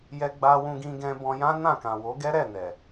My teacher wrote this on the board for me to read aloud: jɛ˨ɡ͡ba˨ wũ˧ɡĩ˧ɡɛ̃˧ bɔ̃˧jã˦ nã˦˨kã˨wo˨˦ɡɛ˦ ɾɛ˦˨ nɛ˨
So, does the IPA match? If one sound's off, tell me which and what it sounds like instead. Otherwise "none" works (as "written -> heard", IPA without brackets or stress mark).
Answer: none